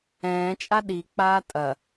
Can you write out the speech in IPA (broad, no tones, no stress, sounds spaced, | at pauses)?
ɛ̃ː t͡ʃʼ a ɗ i k͡p aː tʼ ɐ